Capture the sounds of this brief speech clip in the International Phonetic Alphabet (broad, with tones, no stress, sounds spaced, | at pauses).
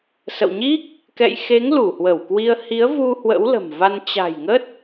s ə̰˧˨ w ɲ i˦˥ k̚ | k ɛ̰˧˨ j x e˨˦ ŋ l u˧˩ h w ə˧˩ w k w i˧ ə̯ h i˨˦ ə̯ v u˧ h w ə̰˧˥ w l ə̤˨˩ m v a˧ n t͡ɕ a̤˨˩ j ŋ ə˦˥ t̚